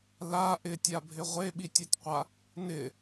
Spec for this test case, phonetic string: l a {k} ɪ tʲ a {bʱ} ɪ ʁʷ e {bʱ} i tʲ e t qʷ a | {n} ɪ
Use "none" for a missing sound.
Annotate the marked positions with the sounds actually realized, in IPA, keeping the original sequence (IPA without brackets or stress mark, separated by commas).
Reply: ʔ, bʱ, ɓ, n